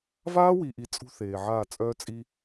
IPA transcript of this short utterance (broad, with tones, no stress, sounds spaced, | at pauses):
v aː˦ w i˨ ʔ i˨ t͡sʼ ṳ˦ θ eː˨ ʕ aː˦˨ t͡sʼ œː˦ t͡sʼ i˦